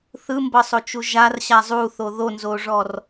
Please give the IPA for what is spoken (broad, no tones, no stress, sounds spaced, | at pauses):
θ ɯ m b ɤ sˤ o t͡ʃ u ʒ a r ɕ a zˤ u θ o ð o n z o ʐ ɔ r